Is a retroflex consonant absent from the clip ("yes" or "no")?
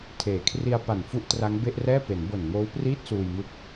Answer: yes